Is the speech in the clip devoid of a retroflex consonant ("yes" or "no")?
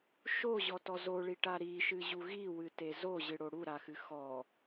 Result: no